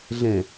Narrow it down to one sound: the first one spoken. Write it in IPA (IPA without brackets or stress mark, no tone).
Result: ɮ